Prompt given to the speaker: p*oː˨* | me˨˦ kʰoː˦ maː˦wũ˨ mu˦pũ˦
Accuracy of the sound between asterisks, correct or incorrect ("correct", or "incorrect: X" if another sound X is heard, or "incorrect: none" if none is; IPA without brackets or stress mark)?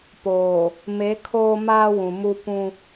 correct